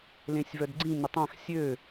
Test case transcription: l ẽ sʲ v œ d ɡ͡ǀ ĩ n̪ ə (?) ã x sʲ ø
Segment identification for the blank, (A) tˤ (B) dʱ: A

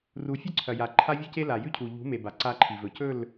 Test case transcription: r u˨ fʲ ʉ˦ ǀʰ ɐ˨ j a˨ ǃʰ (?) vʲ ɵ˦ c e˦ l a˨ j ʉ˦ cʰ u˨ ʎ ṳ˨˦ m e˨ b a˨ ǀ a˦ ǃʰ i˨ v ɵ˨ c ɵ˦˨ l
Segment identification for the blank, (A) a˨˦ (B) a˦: B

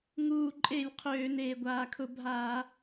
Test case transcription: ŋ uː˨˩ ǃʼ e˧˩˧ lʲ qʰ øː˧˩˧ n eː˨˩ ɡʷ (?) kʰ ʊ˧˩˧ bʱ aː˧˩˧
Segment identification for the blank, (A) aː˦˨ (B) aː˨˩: B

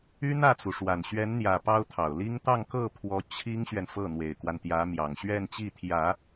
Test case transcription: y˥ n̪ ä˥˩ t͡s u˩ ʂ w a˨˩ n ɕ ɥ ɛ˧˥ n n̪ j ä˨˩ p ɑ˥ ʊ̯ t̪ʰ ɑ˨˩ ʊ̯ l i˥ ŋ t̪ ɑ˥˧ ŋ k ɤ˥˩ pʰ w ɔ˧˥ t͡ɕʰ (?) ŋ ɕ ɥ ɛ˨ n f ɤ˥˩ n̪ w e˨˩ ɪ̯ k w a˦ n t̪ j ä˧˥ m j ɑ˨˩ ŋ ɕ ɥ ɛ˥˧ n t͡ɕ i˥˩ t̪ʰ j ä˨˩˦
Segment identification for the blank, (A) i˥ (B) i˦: A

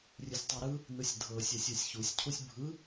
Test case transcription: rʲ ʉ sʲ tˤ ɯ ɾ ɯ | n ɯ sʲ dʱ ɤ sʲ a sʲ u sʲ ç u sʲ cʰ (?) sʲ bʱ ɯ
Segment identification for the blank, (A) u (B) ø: A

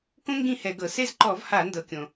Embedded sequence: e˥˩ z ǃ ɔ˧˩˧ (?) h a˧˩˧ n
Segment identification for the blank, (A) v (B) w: A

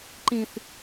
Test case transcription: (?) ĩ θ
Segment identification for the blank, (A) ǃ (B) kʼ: A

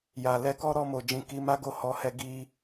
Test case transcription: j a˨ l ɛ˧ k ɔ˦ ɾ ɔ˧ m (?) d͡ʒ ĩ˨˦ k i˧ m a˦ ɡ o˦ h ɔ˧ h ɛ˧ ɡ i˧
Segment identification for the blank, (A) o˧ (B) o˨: B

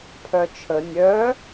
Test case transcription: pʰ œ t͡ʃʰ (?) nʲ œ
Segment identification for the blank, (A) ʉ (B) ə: B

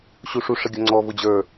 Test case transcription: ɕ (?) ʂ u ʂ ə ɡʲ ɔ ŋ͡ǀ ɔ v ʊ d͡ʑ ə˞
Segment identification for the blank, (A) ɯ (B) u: B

